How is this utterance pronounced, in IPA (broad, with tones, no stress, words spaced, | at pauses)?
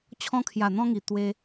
t͡ɕʰɔ̃˧kʰja˨˩ n̪ɔ̃˧ŋi˨˩ t̪we˧